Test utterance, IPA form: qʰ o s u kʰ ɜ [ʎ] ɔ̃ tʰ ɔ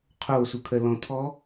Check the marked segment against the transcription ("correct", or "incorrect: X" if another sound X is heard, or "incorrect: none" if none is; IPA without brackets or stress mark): incorrect: l